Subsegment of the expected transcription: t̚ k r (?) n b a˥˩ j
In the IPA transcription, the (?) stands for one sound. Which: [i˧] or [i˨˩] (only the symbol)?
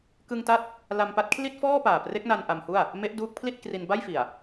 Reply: i˧